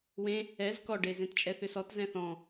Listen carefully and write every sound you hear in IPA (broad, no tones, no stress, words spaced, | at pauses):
wẽ | ɛz kɔɖezẽtt͡ʃʼɛ θʏsɔt zɛ̃θɔ̃